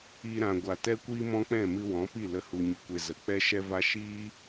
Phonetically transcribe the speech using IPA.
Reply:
i˧ɾã˨ ɡʷa˨tɛ˦kʷiː˦ mɔ̃˦k͡pɛ̃˦˨mɨ˧ wɔ̃˨˦pi˦˨ lə˧ hu˧ɲɨ˧kʷe˧ zə˨k͡pɛ˦ʃɛ˦va˦ ʃiː˦

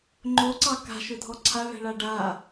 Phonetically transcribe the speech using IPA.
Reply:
ŋ͡ǃoǀɑ ka̤ʃɵdʱɔ ǀʰaɭɛ̤ɭa ɖa

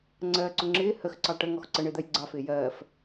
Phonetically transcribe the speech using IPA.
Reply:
ŋ͡ǀɜːǀʊŋ͡ǁɪː həx ǀɑʈə ŋɔxǀə ɳɪːd̪ɜjɡ͡ǀɑ fɪːjɜːf

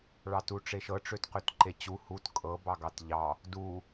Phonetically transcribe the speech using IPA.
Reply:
ɭɑtuʈ͡ʂeʃɤ ʈ͡ʂøtqøtǃet͡ɕu hut kʼɤ bɑɡɑtʎɑ | du

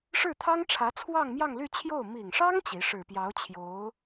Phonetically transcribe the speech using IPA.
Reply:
ʂɻ̩˥˩t̪ʰɑ˥ŋʈ͡ʂʰä˧˥ t͡sʰwɑ˥˧ŋmjɑ˥˧ŋly˥˧t͡ɕʰjo˥˩ʊ̯ mi˨˩ŋʂɑ˥ŋ t͡ɕi˧˥ ʂɻ̩˨˩pjɑ˧˥ʊ̯t͡ɕʰjo˧˥ʊ̯

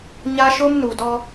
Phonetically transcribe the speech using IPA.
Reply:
ɲa˦ʃʊ˦mnu˨dɔ˦

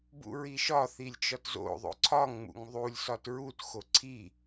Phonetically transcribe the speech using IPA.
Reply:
bṵɹiʃɒ θilʲt͡ʃɒtzo̰ ðˤo̰ǀʰɒŋŋ͡mṵŋ ðˤulʲsɒt ɹutxo ǀʰi

